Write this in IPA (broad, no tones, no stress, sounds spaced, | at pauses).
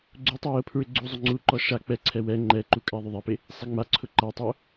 ɡ͡ǀ u tˤ u j ʊ pʰ ɹ ɪ ɡ͡ǀ u zˤ ʊ ŋ͡ǀ u ǃ ɔ ʃ a k͡p ɛ ǀʰ ɛ w ɛ ŋ͡ǃ ɛ ǃ u kʼ a ðˤ ʊ ðˤ ɛ p ɪ | sˤ i ŋ͡m a ǀʰ ʊ ǃ a tˤ o